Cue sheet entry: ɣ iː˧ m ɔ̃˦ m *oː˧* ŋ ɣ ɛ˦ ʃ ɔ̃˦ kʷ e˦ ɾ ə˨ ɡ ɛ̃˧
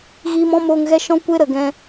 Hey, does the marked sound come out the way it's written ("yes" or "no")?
yes